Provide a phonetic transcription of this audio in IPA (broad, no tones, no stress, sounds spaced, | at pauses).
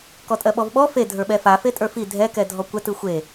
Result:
k ɔ tʼ ɜ ɓ ɔ v ɓ ɔ f e dʱ ə˞ ɓ ɛ f a f e tʼ ə˞ f i dʱ ɛ k ɛ dʱ ɔ kʷ ɛ t ɯ xʷ e